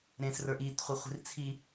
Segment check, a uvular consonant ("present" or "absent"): present